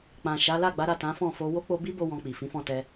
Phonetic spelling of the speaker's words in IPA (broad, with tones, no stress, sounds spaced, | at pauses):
k͡p ã˨ ʃ a˨˦ l a˦˨ ɡ͡b a˨˦ ɾ a˦˨ t ã˨˦ f ɔ̃˦˨ f o˧ w o˦ k͡p o˧ b i˦ b o˧ w ɔ̃˧ k͡p i˨ f ĩ˨˦ f ɔ̃˦˨ t ɛ˧